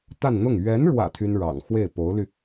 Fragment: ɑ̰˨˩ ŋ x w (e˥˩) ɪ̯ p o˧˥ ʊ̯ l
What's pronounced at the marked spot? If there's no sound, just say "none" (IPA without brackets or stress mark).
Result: e˥˩